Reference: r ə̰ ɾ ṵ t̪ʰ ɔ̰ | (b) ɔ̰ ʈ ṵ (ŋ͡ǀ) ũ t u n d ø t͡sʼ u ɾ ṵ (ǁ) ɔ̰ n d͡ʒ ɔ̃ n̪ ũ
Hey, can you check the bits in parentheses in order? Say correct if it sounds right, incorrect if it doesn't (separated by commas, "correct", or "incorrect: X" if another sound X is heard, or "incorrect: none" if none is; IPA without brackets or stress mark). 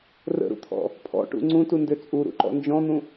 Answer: incorrect: pʰ, correct, incorrect: ǃ